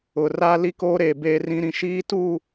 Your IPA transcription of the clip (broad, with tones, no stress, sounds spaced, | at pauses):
ʊ˨ r aː˦ l i˦ k oː˦ ɾ eː˨ b eː˦ r ĩ˦ ɾ ĩ˦ ʃ iː˦ t uː˦˨